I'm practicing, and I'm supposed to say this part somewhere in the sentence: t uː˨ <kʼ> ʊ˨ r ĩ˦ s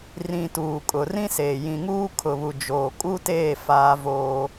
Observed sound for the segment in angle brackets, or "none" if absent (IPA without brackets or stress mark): kʼ